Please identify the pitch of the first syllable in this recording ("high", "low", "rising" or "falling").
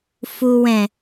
low